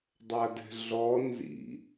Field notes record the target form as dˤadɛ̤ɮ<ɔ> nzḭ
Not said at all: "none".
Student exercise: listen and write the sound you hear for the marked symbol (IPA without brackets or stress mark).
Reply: ɔ